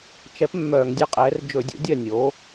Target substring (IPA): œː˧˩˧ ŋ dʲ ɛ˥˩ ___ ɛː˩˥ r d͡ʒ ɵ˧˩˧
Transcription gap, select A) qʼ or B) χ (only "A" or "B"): A